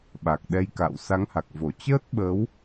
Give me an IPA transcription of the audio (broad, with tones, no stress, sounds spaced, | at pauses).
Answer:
ɓ a˨˩ k̚ ɗ ɛ˧ j k a̰ː˧˨ w s a˨˦ ŋ h a˨˩ k̚ v o˧˩ t͡ɕ əː˦˥ t̚ ɓ ə˨˦ w